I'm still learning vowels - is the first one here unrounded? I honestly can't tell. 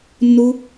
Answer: no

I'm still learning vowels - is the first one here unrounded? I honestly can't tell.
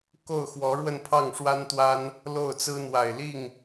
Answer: no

